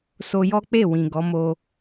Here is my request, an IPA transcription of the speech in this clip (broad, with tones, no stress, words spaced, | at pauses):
so˧jɔ˦k͡pe˦˨ wĩ˨ɡɔ˨˦mo˧